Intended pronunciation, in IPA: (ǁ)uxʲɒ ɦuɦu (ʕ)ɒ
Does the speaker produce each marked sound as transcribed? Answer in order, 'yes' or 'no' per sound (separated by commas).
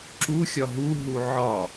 yes, yes